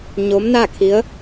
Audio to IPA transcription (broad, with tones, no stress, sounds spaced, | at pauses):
ɲ o˧˥ m n a˥˨ kʰ i˧˥ ə̯